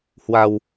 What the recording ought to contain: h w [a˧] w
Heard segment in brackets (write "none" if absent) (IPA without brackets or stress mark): a˧